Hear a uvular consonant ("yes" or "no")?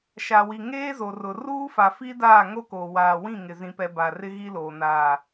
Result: no